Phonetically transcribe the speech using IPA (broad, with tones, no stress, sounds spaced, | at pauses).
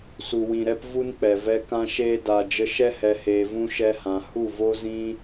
s u˨ w ĩ˨ ɾ ɛ˧ p v u˦ n k͡p ɛ˨ v ɛ˧ k ã˧ ʃ eː˧ d a˨ d͡ʒ ə˧ ʃ ɛ˧ h ɛ˨ h eː˨ v ũ˧ ʃ ɛ˧ h ã˨ h u˦˨ v o˦ z ĩ˦